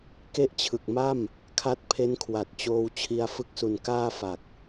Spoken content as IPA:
k e˦˥ ʔ t͡ɕʰ ɯ˨˩ k̚ m a˥˩ m | kʰ a˦˥ t̚ pʰ e˦˥ n kʰ w a˨˩ t̚ t͡ɕ oː˧ w t͡ɕʰ i˧ a̯ f ɯ˦˥ k̚ s u˨˩ n k aː˥˩ f a˨˩ k̚

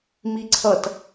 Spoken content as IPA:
m i ǀʰ ʌ t

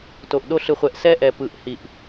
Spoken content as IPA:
t o˨ ʔ ɗ o˦ ɬ ɯ˨ χʷ ɛ˨ ʔ s ɛ˦ ʔ ɛ˨ p ɯ˨ ʔ h i˨ ʔ

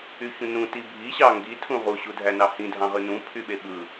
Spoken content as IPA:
y ç ũ n ũ t i bʱ i ɕ ɑ ŋ ɡ i tʰ ũ ʁ u ɕ u dʱ æ n ɑ h ĩ dʱ ɑ̃ ʁ ɯ n ũ pʰ y ɓ e ɓ ɯ

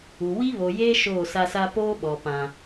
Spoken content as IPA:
u˨ w i˦ β o˨ j eː˦ ʃ oː˦˨ s a˦ s a˦ p oː˦ ɓ ɔ˨ p ã˦

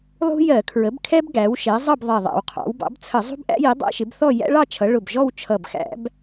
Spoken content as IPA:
lˠ ṳ˦ j ɜ˧˩˧ kʰ ɹ ə˩˥ b kʰ ɛ˦ b ɡ æ˩˥ w ʃ ɛ˩˥ zˤ ʌ˥˨ b ðˤ ɛ˧˩ ðˤ æ̰˧˩˧ w qʰ ɑ̰˩˥ w b ɑ̰˩˥ b t͡sʰ ə˧˩˧ zˤ ṳ˦ b ʔ æ̰˦ j i˩˥ dˤ æ̰˦ ʃ ɪ˩˥ b θ ɔ˥˨ j æ̰˦ ɭ ɑ˥˨ t͡ʃʰ ʌ˩˥ ɭ ʊ˧˩ b ʒ ɔ˥˨ w t͡ʃʰ ʌ˧˩ b x æ̰˧˩˧ b

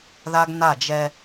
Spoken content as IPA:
ð a˦ ɡ n a˦˨ d͡ʒ ɛ˦

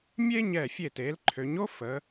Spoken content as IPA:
mʲ e˥ ɲ ɛ˧˩ fʲ e˧˩ t e˩˧ l ǃʰ ø˩˧ ɲ o˥ f ə˩˧

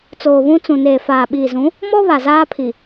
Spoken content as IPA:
t͡s oː˨ β ũ˦ t͡s ũ˨ n eː˨ f aː˨ ɓ iː˨ z ũ˨˦ | m ɔ˦ β a˨ z aː˦ pʰ i˨

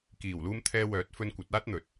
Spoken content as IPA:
k iː˨˩ w l uː˧ m t̪ʰ ɛː˧ w œː˨˥ t̚ f ɵ˧ n kʷ ɐ˨˥ t̚ aː˥ t̚ n̪ ɵ˨˥ t̚

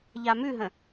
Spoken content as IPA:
ʎ a m ʉ ɦ ə̃

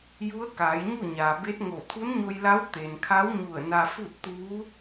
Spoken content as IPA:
j u˧˥ ə̯ k aː˩˧ j ɲ u˥˨ ɲ aː˩ b e˧˥ t̚ ŋ o˧˩ t̪ʰ u˧˥ n ɲ o˧ j l a˧˥ w t̪ e˩ n kʰ a˧˥ w ɲ u˧˩ ə̯ n a˧ f u˥˨ t̚ t̪ uː˧˥

